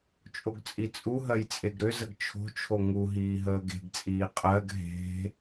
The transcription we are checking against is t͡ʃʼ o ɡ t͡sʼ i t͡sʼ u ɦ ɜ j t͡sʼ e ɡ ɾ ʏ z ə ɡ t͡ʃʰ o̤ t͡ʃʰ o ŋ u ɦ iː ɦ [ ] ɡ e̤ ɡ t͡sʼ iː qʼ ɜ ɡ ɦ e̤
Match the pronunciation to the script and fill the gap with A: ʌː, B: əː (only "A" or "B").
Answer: B